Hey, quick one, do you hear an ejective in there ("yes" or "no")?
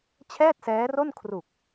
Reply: no